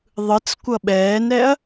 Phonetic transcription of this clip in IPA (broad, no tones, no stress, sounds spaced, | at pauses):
ðˤ ɯ t͡s kʷ ʌ ɓ ɛː n ɾ ɛ ɐ̯